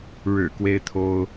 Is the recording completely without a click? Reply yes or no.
yes